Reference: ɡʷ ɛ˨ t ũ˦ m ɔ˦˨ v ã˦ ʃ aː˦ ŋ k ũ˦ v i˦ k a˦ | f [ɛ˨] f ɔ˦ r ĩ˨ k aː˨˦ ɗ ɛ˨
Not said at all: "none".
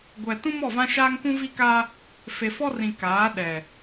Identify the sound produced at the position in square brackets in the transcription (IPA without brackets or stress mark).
e˨